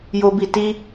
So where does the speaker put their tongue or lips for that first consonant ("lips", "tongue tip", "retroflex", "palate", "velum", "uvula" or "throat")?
palate